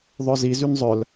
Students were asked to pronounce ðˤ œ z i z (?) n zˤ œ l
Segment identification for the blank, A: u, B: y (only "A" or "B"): B